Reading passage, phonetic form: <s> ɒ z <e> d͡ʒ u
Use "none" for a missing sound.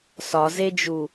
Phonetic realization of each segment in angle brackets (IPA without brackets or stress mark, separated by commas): s, e